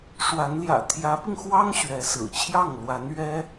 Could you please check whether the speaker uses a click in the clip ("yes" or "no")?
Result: no